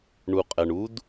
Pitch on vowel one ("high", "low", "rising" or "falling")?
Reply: low